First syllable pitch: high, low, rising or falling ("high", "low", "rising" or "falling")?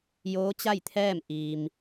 rising